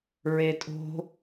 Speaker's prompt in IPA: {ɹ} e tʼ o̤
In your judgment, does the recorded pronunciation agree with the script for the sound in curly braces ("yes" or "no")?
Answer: yes